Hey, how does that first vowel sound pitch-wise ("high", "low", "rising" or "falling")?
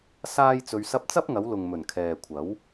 high